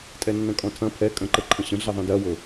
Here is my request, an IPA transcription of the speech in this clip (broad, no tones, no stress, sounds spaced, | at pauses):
tʼ ɛ nː ɐ̃ kʼ ɔ̃ tʰ ɐ̃ pʰ ɛ kʼ ə̃ ǃ ə ǃʰ ə̃ ɕ ə̃ ɮ ɛ ðˤ ɛ̃ d ɐ w ɤ